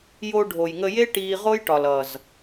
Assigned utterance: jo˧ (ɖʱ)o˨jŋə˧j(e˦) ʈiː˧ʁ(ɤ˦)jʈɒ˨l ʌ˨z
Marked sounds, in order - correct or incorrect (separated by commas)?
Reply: correct, correct, incorrect